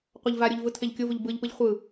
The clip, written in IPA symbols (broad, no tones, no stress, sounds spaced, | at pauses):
qʷ a ʎ v a ɾʲ o ʎ v ɯ tʰ e ʎ kʲ o v u ʎ b ɯ ʎ p ɯ ʎ χʷ ɯ